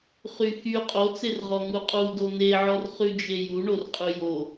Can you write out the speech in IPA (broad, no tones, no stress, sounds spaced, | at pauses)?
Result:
χ y x y qʼ o t͡s e r ʁ ɔ ŋ u qʼ u d o n̪ e ʕ ɔ r χ ʉ d͡ʒ e j u ɳ o r qʼ ʉ j o